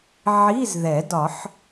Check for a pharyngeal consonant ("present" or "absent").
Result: present